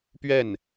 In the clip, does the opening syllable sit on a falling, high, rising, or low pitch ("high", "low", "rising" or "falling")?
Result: falling